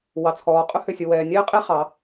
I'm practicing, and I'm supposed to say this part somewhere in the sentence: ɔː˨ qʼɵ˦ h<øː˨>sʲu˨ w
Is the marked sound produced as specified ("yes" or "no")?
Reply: no